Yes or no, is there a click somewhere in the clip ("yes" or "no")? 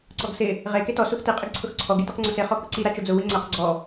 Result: yes